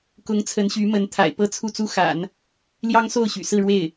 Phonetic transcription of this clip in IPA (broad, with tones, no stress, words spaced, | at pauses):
kʊ˧˥ŋ t͡sʰə˧˥nɕy˧˥mə˧˥nt̪ʰa̰˨˩ɪ̯ pɤ˥t͡sʰu˥˩t͡su˥ xa̰˨˩˦n | ljɑ˥ŋso˥˩ʊ̯ɕy̰˨˩ sɹ̩˥˧ɻwe˥˩ɪ̯